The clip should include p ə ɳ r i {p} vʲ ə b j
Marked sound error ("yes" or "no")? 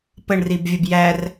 yes